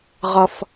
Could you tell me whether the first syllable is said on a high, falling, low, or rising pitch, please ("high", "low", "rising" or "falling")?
high